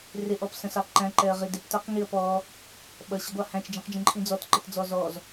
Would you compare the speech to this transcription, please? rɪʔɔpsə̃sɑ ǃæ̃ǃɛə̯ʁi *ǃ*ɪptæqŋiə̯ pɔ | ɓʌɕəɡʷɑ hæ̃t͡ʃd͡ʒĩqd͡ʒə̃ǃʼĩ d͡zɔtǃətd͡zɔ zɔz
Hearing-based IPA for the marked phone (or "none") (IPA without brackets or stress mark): d